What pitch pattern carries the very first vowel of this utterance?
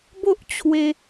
high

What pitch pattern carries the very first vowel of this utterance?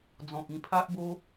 low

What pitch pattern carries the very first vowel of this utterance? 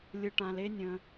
low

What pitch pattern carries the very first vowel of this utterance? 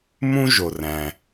high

